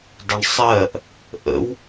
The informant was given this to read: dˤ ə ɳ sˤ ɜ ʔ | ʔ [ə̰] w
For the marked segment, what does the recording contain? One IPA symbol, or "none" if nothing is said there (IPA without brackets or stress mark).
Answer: ə̰